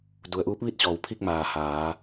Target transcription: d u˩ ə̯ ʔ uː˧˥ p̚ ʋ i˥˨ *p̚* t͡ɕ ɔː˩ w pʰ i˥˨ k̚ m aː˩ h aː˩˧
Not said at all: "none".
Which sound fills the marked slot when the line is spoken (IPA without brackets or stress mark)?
t̚